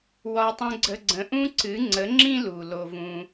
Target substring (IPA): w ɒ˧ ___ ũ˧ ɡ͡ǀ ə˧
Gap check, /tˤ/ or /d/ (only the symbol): tˤ